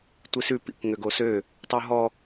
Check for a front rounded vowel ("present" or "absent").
present